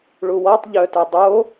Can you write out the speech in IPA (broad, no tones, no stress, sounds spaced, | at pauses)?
ɭ u w ɔ tˤ ʎ œ t œ dˤ o